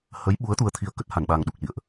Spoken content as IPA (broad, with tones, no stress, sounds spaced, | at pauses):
h ə˨˦ j ɓ u˨˦ ə̯ t̪ u˧ ə̯ t̪ʰ i˧ ə̯ k ə˦˥ t̚ h a˧˩ n ɓ a˨˩ ŋ ɗ u˨˩ k̚ l ḭ˧˨ ə̯ ʔ